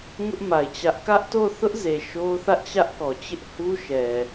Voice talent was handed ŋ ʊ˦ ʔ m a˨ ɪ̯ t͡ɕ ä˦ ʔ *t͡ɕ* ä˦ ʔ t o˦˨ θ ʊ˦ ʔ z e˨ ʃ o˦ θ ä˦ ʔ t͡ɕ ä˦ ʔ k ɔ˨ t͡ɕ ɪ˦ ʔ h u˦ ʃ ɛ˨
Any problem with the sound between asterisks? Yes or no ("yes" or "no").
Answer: yes